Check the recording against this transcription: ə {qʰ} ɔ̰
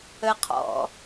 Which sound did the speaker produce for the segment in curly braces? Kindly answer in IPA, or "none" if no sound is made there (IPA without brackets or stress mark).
qʰ